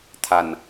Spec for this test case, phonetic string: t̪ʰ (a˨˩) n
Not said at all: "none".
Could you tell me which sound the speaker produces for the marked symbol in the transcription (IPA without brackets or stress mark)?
a˨˩